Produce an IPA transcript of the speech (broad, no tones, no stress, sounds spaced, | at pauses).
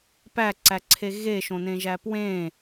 p æ ǀ æ ǀʰ e ɣ e ʃ õ n ẽ ʒ æ p w ẽ